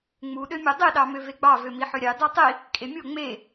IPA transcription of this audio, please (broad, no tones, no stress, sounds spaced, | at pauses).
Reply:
ŋ͡m u ɗ ø mʲ o dˤ i ɗ ɑ m ø v e ɡ͡b ɑ v ø m i ħ ø ɾʲ ɑ d ɑ tˤ i | kʼ e mʲ o ŋ͡m e